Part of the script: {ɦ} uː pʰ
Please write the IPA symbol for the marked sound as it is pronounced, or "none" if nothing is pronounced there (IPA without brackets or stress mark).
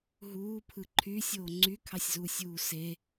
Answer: ɦ